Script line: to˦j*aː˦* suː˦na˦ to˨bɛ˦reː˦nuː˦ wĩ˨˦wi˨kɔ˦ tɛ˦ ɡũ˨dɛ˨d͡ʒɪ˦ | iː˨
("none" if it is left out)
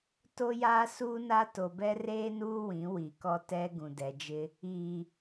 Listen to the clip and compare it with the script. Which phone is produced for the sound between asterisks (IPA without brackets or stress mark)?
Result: aː˦